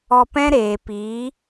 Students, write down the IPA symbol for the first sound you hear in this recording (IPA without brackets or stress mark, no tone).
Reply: ɔ